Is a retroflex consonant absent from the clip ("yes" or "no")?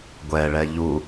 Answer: no